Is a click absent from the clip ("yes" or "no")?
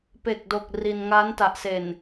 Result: yes